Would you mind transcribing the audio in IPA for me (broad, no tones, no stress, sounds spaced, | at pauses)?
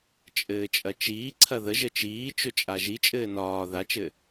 t͡ʃʼ ɘː t͡ʃʼ ɐ t͡ʃ iː ǀʰ ɐ ð ə ʒ ə t͡ʃ iː t͡ʃ ɵ t͡ʃʼ a ʒ i t͡ʃʼ ɘː n ɒː ð a t͡ʃ ɘ